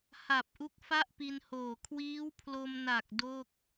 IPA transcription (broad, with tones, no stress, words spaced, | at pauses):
ha˨˩p̚ʔu˦˥k̚ fa˥˩ʔpi˧nhoː˨˩ kʰwiː˦˥wpʰlo˧mna˨˩k̚ do˥˩k̚